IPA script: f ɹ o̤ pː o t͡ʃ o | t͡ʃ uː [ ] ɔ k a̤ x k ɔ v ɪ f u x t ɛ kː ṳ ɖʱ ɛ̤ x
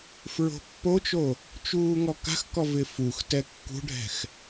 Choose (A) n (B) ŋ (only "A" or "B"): B